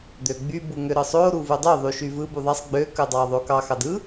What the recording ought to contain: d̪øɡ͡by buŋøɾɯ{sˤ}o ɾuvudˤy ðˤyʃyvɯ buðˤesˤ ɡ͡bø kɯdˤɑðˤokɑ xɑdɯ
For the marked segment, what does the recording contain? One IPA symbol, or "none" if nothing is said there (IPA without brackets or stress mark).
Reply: sˤ